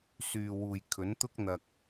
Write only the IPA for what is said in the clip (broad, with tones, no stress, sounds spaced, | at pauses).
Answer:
s yː˨ w uː˨ j kʰ ɵ˨˥ n t̪ ʊ˥ k̚ n̪ ɐ˧ k̚